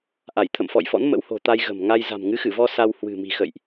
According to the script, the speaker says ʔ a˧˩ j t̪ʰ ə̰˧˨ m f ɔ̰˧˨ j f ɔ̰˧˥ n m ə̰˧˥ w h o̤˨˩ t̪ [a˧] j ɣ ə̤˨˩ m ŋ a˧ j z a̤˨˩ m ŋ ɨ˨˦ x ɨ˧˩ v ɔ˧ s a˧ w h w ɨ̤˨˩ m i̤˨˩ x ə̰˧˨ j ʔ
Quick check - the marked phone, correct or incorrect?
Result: correct